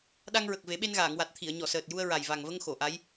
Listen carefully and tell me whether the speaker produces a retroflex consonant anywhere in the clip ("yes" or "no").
no